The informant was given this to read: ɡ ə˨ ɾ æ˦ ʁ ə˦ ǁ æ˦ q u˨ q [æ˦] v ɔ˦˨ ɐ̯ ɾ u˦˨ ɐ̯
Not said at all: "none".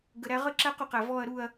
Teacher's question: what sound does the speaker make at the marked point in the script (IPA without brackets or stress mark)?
æ˨